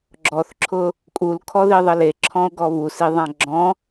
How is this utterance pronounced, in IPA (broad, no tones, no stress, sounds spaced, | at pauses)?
ɡ͡ǁ ɔ θ ǁʰ ʊ | kʼ u l kʰ ɔ ð i ðˤ ə l e ǁʰ ɔ̃ o̯ ɡ ɔ β u s i ðˤ ã ɡ͡ǁ ɔ̃